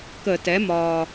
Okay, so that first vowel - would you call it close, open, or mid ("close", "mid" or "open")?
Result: mid